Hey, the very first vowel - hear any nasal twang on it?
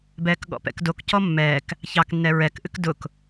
no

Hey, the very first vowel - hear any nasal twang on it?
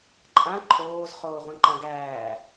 yes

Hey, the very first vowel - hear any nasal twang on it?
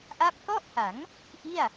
no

